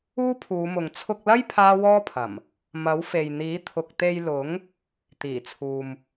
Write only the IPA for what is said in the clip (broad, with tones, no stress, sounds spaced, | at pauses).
uː˥ pʰ uː˨˧ m ʊ˨ ŋ t͡sʰ ʊ˧ k̚ l ɐ˥ j pʰ aː˥ w ɔː˥ pʰ ɐ˨˩ m | m ɐ˨˥ w f e˨ j n̪ iː˨˥ t̪ʰ ʊ˨ k̚ t̪ e˧ j l ʊ˨˥ ŋ | t̪ iː˨˩ t͡sʰ uː˨ m